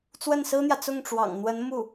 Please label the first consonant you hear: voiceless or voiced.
voiceless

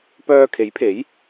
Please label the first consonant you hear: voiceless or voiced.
voiceless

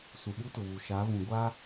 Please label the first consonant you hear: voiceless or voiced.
voiceless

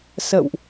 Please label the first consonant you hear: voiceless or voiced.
voiceless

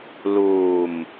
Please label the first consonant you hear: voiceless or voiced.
voiced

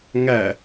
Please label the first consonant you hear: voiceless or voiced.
voiced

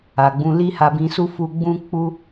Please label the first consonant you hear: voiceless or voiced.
voiced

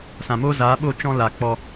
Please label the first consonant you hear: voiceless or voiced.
voiceless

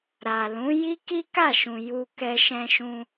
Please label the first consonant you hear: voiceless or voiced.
voiced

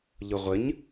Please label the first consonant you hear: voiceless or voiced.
voiced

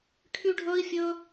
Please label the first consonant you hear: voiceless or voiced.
voiceless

